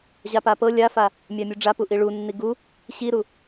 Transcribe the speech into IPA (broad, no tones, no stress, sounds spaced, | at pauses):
ʑ a p a p ɤ lʲ a f a | mʲ a mʲ u ɖ͡ʐ a p u ʔ i ɭ u nː i ɡ u | ɕ i ɾ u